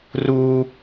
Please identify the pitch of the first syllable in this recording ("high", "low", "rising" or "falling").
high